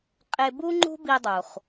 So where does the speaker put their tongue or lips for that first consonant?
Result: uvula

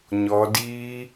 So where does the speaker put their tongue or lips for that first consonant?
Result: palate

